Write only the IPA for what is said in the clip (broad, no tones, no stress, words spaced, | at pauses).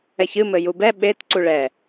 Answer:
ɛçɨ mɘjubɛ ɓet ǀuɭɛ